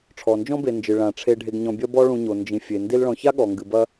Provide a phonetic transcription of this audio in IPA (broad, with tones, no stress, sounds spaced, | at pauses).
ʈ͡ʂʰ ɔ˩ n d͡ʒ ɔ̃˦ b e˨ n d͡ʒ ɨ˩ ɭ ã˩ ʈ͡ʂʰ e˨ ɖʱ e˨ ɡ ɲ ɔ̃˨ bʲ ɐ˦ b ɔ˦ ɭ ũ˨ ɲ o˩ n d͡ʒ ĩ˩ fʲ e˩ n d i˦ l ɭ ɔ̃˨ ç a˥ ɠ ɔ˩ ŋ ɡ ɨ˩ b ɐ˦